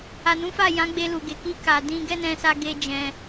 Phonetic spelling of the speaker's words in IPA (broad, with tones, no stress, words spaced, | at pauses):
a˨nũ˨˦fa˦˨jã˨˦ ɡ͡be˧lu˨ɡe˨ ki˧ ka˨ dĩ˧ ɡɛ˦nɛ̃˧sa˧ ɡe˦ d͡ʒɛ̃˧